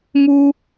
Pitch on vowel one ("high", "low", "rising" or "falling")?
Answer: high